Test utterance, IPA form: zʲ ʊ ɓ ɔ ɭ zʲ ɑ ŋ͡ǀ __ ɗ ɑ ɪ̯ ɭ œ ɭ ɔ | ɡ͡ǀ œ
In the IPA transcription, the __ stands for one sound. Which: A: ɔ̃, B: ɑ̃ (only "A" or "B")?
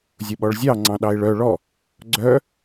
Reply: B